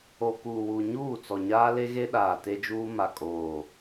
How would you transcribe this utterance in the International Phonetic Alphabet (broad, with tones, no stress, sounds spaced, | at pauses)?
o˨ k uː˨ w u˨ ɲ uː˦˨ t͡s ɔ˨ ɲ aː˦ l e˦ ɣ e˦ ɗ aː˨ t e˦ d͡ʒ uː˦ m a˦˨ kʼ oː˦˨